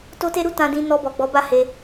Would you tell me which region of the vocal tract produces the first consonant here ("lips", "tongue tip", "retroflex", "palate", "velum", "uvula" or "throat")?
tongue tip